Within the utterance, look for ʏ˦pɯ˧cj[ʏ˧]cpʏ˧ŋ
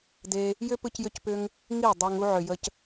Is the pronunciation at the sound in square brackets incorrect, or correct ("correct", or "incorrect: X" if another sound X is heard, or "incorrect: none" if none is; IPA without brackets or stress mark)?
correct